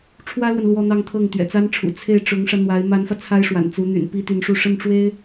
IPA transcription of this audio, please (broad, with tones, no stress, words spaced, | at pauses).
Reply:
ʈ͡ʂʰwä˥lwə˨n lwɔ˥˧n̪ɑ˥˧ŋt̪ʰɤ˥˩ŋ t̪ɥɛ̰˨˩t͡sa˥nʈ͡ʂʰṵ˨˩ t͡sʰe˥˩ɪ̯ ʈ͡ʂʊ˧˥ŋʂä˧ n̪wa˧˥ɪ̯ ma˧˥nfä˧ t͡sʰa˥ɪ̯ʂwa̰˨˩nt͡su˧˥n̪y̰˨˩n pi˥t̪y˧˥nʂu˥˧ ʂə˥˩n ʈ͡ʂwe˥ɪ̯